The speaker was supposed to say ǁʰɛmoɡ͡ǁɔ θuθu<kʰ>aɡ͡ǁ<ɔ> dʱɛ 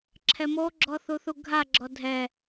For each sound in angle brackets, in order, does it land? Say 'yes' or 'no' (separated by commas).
no, yes